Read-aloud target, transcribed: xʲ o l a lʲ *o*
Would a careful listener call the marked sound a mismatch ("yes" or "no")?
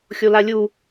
yes